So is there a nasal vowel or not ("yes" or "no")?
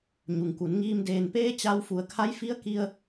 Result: no